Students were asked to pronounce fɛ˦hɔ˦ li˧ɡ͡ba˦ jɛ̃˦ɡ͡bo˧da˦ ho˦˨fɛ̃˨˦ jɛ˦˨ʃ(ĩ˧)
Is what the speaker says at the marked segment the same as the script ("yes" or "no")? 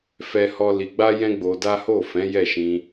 yes